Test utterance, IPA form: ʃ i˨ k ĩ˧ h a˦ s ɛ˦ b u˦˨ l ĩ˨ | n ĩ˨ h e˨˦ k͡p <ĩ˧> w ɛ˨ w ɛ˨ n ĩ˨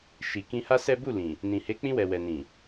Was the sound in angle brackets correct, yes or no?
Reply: yes